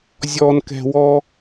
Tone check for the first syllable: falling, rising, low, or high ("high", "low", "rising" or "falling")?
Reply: low